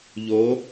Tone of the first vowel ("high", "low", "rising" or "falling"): rising